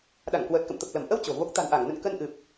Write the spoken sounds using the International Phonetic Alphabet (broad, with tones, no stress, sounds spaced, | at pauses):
ɗ a˧˩ ŋ k w əː˨˩ t̚ k ə̰˧˨ m t̪ ə˨˩ p̚ l ə˧˩ m ʔ ə˧ w t͡ɕ o̤˨˩ v o˦˥ k̚ t̪ a̤˨˩ n ʔ a˧˩ ŋ n ə̰˧˨ n k ə˧ n ʔ ɨ˨˩ p̚